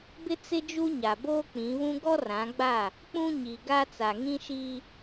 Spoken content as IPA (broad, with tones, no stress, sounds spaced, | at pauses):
b ɪ˦ t͡s ɪ˦ d͡ʒ u˦ ɲ a˨ b oː˦ k͡p ĩ˨˦ β ũ˦ ɡ ɔ˦ r ã˨˦ ɡ͡b a˦˨ | k͡p ũ˦ ɲ i˨ ɡ a˦ t͡s a˨ ŋ ĩ˦ ʃ iː˦